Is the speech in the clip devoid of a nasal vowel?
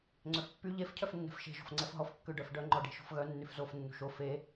yes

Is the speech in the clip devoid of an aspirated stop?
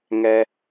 yes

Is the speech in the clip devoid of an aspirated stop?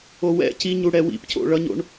yes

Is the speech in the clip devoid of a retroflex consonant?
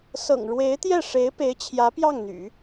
no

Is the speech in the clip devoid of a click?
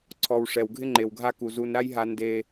no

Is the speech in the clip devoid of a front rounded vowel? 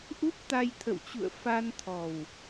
yes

